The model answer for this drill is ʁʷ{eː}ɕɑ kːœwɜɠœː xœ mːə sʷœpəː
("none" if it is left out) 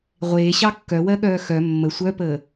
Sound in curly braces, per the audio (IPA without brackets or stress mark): eː